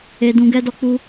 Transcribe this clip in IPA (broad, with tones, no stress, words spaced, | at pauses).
e˧dũ˧ɡɛ˦dɔ˦ k͡pu˦